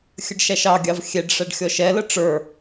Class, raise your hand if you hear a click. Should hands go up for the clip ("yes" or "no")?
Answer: no